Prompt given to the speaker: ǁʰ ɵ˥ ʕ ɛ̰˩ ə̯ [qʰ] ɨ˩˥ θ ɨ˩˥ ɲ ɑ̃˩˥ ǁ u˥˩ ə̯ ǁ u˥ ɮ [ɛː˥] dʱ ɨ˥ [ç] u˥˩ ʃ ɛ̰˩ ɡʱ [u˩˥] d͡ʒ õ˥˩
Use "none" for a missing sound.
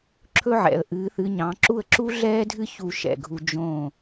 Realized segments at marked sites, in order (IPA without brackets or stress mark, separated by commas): ʔ, ɛː˥, ç, u˧